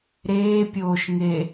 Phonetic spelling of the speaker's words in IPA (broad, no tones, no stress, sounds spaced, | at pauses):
ɾ eː pʲ oː ʃ ŋ e